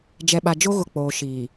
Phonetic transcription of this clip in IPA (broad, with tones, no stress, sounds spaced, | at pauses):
d͡ʒ ɛ˨ ɓ a˨ d͡ʒ o˦ ɣ ʊ˨ k͡p oː˨ ʃ iː˨